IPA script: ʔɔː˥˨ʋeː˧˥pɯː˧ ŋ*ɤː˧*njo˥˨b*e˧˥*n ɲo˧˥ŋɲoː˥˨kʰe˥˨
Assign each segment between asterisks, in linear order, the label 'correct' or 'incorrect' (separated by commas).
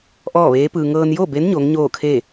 correct, correct